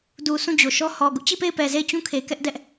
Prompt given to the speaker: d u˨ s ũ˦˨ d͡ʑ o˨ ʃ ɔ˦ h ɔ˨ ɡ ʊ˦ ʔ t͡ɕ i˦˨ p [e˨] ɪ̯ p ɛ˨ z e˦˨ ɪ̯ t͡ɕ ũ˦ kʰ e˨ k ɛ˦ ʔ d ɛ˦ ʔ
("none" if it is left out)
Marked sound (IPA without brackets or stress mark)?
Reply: e˦˨